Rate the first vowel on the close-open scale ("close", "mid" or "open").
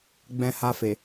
mid